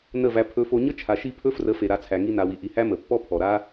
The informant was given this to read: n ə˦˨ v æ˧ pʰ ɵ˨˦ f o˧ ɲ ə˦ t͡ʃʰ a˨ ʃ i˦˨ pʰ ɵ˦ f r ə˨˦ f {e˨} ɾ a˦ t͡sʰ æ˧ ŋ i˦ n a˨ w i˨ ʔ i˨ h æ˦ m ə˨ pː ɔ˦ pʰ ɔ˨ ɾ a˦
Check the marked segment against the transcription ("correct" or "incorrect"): correct